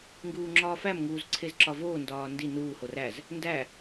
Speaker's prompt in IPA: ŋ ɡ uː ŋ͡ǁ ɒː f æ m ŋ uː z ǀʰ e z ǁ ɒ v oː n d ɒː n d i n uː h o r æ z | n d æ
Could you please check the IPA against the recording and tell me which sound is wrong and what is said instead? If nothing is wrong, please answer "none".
none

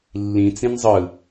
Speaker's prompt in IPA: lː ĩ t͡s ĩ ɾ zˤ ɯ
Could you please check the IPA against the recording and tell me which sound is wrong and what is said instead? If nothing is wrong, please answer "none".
ɾ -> n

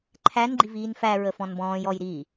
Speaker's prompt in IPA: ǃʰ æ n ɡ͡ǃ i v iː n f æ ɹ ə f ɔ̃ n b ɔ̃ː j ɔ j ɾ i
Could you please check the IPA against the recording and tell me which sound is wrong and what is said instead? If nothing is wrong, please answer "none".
none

